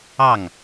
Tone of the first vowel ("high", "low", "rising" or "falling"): falling